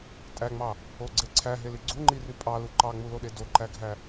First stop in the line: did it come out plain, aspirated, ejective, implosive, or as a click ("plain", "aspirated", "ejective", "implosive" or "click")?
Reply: ejective